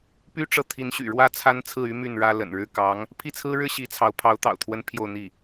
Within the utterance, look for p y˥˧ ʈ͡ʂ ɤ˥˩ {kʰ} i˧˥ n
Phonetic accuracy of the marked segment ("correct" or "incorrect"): incorrect